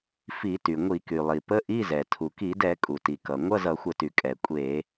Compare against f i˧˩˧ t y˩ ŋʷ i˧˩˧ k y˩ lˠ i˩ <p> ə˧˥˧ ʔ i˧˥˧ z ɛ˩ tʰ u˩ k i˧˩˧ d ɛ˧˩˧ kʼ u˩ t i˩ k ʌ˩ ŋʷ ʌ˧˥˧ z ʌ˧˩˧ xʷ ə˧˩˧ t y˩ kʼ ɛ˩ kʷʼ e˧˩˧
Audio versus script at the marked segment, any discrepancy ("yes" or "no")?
no